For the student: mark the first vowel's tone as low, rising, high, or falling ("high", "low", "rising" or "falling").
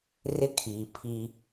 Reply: high